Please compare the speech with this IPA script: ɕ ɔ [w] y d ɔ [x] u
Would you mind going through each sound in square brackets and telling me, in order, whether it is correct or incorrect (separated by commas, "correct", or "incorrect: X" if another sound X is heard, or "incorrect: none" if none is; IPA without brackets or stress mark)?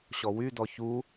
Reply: correct, incorrect: ç